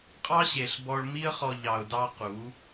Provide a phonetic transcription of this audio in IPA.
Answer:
qʼɑ˦ɕe˨ɬ bɔ˧ɭmi˦ə̯χɔ˧ ʎɑ˨ʊ̯dɑ˧ qu˨˦

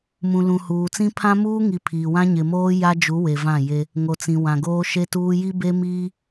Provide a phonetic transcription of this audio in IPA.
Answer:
mũ˨lũ˨huː˨t͡sĩ˦ pʰã˦muː˦ŋi˨ pʰiː˨wã˦ ɲɪ˨moː˦ ja˦d͡ʒu˨˦ we˨ vã˦˨je˦ | ŋo˨t͡sĩ˨ wã˨ɡoː˦ ʃe˦tuː˦ ji˦be˦miː˦

